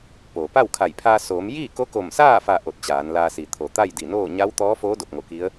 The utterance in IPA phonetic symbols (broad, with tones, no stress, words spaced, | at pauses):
poː˩pa˥˨wkʰa˧˩j pʰaː˧soː˩˧m jiː˥˨ko˧˥ko˧˩msaː˥˨ fa˥˨ ʔo˧˩t̚t͡ɕaː˩˧nlaː˧si˩ t̪ʰo˩t̪a˥˨jdi˧˩noː˥˨ ɲa˧˥wt̪ɔː˧˥foː˧˥ do˧˩p̚ŋo˧˩ki˧˥ə̯